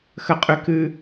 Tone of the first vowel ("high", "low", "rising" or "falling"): high